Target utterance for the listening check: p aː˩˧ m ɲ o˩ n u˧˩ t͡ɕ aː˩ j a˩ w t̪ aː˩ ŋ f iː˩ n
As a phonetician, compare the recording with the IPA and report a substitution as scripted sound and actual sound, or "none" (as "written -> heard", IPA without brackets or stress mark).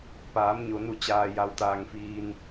none